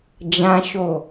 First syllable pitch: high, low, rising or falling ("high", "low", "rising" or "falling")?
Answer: high